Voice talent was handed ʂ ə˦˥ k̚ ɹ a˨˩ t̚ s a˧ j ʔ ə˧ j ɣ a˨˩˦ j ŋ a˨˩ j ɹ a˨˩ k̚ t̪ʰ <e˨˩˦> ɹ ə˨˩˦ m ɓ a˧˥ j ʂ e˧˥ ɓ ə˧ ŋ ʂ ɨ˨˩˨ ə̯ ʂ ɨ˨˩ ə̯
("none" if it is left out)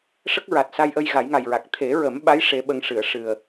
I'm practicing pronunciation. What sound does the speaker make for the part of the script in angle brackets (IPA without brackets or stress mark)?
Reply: e˨˩˦